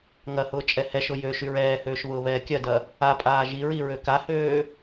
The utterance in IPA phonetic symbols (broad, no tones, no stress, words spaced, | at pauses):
ŋɐhʊː t͡ʃʼɛhɛʃʊ jøʃyɹ ɛːhøːʃ βʊːβɛːkʲɐdɐ | apʼaː ʒiɹi ɹøkahøː